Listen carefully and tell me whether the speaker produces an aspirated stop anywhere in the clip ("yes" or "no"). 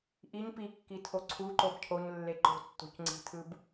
yes